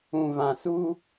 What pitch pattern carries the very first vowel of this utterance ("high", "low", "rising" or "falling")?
low